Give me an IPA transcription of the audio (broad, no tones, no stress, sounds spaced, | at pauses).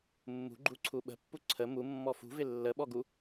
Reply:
mː ṳ ɡ͡ǃ u ǀʰ u ɓ ə̤ pː u ǀʰ ə m u mː ɔ f ṳ v ɪ lː ə ɓ ɔ ɡ u